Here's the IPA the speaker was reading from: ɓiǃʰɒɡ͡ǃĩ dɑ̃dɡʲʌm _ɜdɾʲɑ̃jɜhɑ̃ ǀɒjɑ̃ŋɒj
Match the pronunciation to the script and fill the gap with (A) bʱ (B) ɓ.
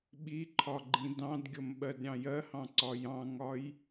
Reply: B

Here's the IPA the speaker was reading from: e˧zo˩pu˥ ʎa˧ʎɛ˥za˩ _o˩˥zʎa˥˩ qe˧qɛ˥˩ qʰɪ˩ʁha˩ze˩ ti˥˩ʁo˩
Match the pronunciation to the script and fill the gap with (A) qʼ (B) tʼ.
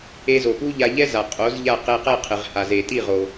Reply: A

